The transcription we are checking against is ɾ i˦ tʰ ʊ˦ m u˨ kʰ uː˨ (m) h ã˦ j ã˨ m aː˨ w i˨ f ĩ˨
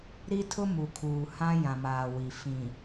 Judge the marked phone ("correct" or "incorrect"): incorrect